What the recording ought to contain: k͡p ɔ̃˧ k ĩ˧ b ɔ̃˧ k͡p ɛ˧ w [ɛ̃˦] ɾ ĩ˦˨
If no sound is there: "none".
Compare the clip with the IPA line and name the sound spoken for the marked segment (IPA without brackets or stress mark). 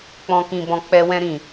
ɛ̃˦